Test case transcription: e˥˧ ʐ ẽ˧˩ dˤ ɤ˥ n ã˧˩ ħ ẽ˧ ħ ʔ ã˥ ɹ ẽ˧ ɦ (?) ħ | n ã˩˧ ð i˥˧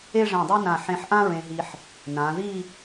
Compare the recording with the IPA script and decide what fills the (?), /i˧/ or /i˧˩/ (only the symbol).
i˧